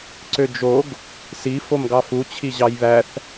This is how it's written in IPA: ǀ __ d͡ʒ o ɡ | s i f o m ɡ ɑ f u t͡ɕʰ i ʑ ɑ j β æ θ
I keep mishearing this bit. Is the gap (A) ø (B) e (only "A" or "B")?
A